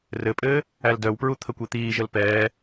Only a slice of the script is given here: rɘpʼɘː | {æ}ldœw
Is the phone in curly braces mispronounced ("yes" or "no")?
no